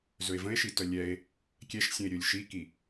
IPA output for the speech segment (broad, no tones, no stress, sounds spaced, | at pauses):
z ɵ e̯ v ə̃ e̯ ʃ i t œ lʲ ɛ e̯ | kʲ ɛ ʃ sʲ ə̃ e̯ ɾʲ ɵ lʲ ʃ i k i